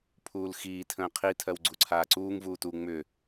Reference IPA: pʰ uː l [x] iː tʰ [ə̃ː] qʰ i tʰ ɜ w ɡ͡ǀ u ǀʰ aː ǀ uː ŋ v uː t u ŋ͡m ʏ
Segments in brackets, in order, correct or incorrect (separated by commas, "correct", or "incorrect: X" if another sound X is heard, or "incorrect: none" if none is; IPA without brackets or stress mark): correct, correct